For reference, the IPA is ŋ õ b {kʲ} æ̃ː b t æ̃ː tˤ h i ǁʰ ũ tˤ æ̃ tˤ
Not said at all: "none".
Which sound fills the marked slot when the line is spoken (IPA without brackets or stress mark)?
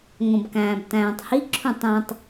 k